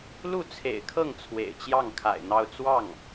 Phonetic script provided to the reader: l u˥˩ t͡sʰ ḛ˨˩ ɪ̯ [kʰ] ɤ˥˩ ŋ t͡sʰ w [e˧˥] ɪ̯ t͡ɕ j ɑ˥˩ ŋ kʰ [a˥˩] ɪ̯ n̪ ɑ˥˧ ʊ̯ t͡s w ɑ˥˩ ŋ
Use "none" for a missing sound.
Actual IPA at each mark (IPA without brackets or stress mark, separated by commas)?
kʰ, ḛ˨˩, a̰˨˩